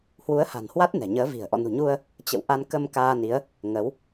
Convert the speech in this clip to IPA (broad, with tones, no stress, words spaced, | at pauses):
hwu˨˦ə̯ha̤˨˩nhwa˦˥t̚ nɛ̤˨˩ɲəː˨˦vi̤˨˩ə̯ ʔɔ̰˧˨nṳ˨˩ɲu˧ə̯ | t͡ɕə̰˧˨wʔa˧n kə˧m kaː˧ni˨˦ə̯ | ŋə˨˦w